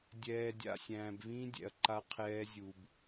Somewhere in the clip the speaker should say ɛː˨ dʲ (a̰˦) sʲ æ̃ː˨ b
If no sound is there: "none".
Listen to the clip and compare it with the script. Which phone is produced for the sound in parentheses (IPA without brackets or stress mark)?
a̰˨